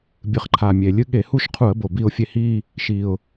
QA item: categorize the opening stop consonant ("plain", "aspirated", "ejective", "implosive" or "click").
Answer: plain